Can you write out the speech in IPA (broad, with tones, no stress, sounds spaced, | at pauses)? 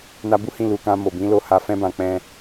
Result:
n a˧ b u˦ h ĩ˧ l u˨ k ã˧ m o˨ b ĩ˨˦ l o˧ h a˧ f ɛ̃˦ b ã˧ k͡p ɛ̃˦